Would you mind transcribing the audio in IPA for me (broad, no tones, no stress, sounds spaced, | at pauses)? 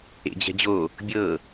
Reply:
ḛ d͡ʑ ɛ̤ d͡ʑ o | bʲ ɤ